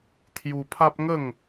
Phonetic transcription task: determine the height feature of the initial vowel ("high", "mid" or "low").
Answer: high